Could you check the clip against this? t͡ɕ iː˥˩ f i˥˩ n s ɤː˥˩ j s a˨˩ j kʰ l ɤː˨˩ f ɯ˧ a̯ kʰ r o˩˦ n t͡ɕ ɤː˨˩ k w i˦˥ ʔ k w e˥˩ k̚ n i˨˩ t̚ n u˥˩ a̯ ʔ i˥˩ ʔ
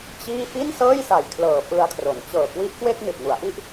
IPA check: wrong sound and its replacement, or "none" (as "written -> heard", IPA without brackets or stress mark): u˥˩ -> u˩˦